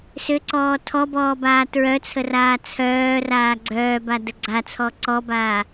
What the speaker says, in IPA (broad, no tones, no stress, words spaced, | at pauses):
sʏǀɔː tʰɔbɔːbaː tɹœt͡sʰəraː t͡sʰœːraː ɡ͡ǀœːbadə ɡ͡ǀat͡sʰɔ ǀɔbaː